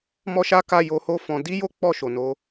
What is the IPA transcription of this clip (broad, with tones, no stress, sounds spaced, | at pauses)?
m ɔ˦ ʃ a˦ k a˦˨ j o˧ h o˦ f ɔ̃˧ d i˦ j o˦ k͡p ɔ˦˨ ʃ o˨ n o˨˦